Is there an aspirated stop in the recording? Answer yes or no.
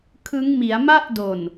yes